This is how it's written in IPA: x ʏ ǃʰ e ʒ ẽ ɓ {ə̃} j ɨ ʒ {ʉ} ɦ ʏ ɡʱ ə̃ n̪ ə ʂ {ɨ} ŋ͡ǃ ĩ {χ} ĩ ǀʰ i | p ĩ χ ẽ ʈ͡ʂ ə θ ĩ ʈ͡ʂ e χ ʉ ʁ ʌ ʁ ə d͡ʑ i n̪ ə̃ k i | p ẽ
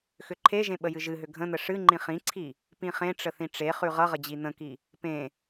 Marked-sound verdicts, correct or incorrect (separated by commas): incorrect, incorrect, correct, correct